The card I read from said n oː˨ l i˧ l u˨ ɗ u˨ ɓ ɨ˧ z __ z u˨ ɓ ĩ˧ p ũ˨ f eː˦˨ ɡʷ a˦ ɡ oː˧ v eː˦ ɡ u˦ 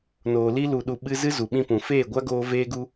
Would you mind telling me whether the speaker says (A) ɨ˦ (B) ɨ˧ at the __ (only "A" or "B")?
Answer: A